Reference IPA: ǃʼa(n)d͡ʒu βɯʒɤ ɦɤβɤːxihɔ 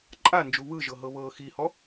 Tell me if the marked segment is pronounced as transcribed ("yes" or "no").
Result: yes